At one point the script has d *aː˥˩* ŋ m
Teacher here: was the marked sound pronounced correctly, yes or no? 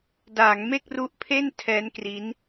no